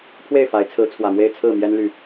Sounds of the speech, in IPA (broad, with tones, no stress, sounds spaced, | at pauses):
pʰ w e˥˨ ɪ̯ f a˨˦ ɪ̯ t͡sʰ ɹ̩˨˦ t͡sʰ w ä˨˩ m w e˥˨ ɪ̯ t͡sʰ ɹ̩˥˨ m j ɛ˦ n l y˥˨